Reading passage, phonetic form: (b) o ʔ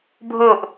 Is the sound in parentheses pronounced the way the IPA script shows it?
no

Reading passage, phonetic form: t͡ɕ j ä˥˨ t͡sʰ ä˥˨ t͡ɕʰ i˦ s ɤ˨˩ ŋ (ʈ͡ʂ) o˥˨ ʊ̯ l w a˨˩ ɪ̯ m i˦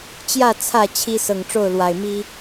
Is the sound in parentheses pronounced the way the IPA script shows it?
yes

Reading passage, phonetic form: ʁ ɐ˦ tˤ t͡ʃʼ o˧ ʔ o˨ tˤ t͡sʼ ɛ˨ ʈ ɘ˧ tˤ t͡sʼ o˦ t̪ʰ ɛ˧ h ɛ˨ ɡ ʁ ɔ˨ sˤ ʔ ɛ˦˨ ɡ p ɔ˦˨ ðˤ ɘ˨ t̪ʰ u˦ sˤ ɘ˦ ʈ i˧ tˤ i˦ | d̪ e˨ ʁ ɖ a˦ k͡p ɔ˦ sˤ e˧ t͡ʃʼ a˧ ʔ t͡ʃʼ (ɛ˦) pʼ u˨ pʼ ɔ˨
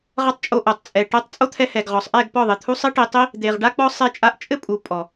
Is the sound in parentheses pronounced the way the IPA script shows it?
no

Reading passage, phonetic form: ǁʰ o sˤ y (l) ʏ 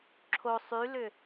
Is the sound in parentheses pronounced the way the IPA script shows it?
yes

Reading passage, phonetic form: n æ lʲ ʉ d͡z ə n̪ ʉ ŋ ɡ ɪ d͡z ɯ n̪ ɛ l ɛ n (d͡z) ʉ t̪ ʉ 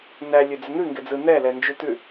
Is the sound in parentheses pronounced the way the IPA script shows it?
no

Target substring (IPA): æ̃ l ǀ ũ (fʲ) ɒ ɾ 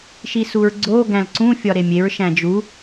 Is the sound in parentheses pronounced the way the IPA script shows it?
yes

